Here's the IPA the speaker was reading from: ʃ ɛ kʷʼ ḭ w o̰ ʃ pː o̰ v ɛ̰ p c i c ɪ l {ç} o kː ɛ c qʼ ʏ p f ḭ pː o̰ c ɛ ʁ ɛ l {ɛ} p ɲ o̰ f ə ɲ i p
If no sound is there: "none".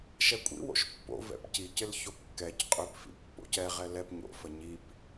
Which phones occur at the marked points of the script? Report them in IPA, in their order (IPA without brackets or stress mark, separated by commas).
ç, ɛ